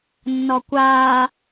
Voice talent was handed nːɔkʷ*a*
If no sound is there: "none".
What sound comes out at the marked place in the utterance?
aː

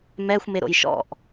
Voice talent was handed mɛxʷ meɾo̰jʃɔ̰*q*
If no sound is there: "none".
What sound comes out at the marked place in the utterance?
ʔ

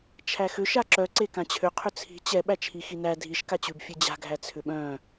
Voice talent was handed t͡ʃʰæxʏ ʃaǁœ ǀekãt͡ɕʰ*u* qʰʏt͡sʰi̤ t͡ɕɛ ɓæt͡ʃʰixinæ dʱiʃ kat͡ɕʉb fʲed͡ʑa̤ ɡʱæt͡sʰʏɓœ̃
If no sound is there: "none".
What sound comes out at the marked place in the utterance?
ʏ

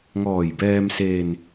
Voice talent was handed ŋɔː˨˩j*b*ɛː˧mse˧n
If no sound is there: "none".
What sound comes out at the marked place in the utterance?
b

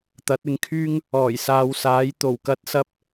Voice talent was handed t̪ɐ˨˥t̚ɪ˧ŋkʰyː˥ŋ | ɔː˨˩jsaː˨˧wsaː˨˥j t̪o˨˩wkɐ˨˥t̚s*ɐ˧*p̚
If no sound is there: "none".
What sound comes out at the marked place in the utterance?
ɐ˧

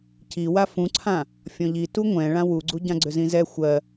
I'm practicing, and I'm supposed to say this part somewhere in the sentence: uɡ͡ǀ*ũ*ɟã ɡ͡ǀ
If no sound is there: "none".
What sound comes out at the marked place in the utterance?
u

